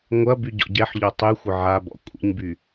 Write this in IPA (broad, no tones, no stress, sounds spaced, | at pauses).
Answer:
ŋʷ ɐ b y ɟ ɔ̰ ɟ ɛ ħ ʎ ɔ tˤ y xʷ ə ʕ a b ɔ̰ kʷʼ ə̰ ɲ b y